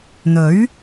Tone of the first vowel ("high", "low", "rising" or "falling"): rising